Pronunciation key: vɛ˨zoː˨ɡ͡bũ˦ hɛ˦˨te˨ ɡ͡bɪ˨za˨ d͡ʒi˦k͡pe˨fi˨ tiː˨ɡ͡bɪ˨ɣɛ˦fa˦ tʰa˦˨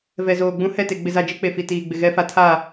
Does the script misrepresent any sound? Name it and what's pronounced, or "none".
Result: none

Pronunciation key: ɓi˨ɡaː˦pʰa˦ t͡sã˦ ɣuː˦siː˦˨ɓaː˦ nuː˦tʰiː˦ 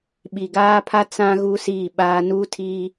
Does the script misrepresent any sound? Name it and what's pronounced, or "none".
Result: none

